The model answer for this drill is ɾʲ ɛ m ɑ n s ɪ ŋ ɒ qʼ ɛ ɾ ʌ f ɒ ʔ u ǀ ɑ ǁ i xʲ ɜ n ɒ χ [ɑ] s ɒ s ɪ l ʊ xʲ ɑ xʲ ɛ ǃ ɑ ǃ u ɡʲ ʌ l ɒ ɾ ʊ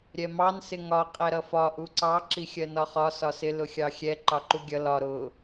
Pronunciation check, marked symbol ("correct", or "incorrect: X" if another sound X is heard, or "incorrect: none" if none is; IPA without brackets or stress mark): incorrect: ɒ